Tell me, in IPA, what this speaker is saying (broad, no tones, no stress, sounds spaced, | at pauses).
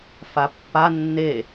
f a pː a nː e